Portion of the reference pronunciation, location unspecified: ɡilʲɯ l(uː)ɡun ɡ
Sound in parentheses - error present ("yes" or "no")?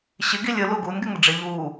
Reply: yes